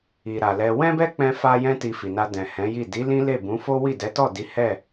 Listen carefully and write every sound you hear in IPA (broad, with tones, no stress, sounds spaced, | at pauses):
i˨ ɾ a˨ l ɛ˧ w ɛ̃˦ b ɛ˦ k͡p ɛ̃˦ f a˦ j ɛ̃˦ t i˧ f i˨ n a˧ d ɛ̃˨ h ɛ̃˨˦ j i˦˨ d i˨˦ l ĩ˦ l e˦˨ b ũ˨˦ f o˦ w i˦˨ d ɛ˨˦ t ɔ˦˨ d i˨˦ h ɛ˦˨